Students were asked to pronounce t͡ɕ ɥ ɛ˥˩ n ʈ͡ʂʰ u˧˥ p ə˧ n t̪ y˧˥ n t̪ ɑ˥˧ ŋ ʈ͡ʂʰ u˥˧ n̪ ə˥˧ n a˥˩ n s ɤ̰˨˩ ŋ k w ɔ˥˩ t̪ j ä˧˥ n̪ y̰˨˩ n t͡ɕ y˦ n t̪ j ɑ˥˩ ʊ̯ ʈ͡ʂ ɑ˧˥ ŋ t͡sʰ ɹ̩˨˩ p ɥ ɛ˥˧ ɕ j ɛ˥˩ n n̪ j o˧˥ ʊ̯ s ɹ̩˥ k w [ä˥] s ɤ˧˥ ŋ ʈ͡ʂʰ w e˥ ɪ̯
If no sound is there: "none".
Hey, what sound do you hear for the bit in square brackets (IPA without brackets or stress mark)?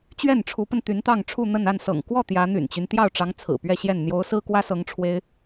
ä˥